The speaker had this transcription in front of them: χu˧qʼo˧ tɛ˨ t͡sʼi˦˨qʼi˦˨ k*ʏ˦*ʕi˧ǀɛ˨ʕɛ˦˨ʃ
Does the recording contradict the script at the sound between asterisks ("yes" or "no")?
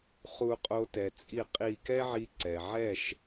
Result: yes